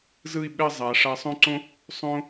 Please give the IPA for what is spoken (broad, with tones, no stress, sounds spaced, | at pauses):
z ɯ˥˧ i̯ ɓ ɛ˥˧ zˤ a˩˧ ʂ a˧ sˤ õ˥ ǀ õ˥ | sˤ õ˥